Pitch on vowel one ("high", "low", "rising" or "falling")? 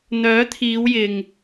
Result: rising